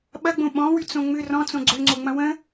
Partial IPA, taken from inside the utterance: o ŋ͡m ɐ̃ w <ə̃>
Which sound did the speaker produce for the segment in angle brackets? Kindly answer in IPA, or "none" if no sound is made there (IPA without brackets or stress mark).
ə̃